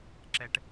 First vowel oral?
yes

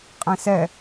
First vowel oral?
no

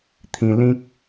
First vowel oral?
no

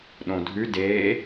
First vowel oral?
no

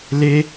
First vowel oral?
yes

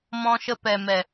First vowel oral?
no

